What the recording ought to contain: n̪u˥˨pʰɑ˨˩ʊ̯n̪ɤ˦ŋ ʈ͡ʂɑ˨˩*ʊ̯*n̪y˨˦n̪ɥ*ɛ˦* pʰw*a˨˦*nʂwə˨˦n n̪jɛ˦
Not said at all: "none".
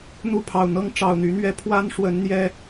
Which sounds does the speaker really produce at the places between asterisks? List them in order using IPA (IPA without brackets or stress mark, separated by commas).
ʊ̯, ɛ˦, a˦